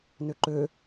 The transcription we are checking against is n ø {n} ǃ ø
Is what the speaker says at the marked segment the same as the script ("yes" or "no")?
no